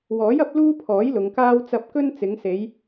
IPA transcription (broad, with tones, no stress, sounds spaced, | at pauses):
w ɔː˨˥ j ɐ˨˥ p̚ l uː˥ pʰ ɔː˨˥ j l ʊ˨˧ ŋ k aː˥ w t͡s ɐ˧ p̚ k ɵ˥ n t͡s ɪ˨˧ ŋ s e˨˧ j